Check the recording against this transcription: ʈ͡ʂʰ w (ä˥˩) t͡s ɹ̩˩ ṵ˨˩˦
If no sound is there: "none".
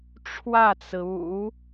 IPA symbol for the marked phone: ä˥˩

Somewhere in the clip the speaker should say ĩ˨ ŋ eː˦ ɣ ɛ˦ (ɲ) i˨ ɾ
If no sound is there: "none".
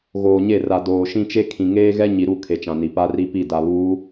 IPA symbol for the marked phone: ɲ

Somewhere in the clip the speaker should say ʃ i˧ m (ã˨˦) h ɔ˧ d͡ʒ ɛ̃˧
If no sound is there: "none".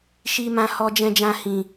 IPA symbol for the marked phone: ã˧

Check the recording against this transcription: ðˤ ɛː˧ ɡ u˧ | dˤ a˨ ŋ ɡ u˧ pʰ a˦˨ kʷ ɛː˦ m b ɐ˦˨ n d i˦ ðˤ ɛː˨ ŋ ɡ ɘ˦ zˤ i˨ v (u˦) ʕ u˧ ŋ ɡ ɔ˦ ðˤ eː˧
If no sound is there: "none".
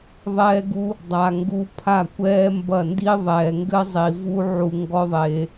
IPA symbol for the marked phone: u˦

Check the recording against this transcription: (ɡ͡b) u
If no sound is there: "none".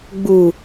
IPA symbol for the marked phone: ɡ͡b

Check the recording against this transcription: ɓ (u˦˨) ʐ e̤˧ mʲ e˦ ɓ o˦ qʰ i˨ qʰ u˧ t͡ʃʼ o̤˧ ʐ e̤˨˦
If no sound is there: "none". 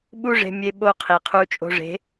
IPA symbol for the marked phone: u˦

